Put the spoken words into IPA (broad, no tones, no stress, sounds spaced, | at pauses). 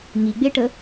ŋ i ɡ͡b e ʈ ə